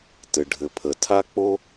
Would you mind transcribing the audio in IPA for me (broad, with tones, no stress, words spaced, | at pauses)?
tɘ˩ɖʱɘ˩pʰə˩ tʰa˥k͡po˥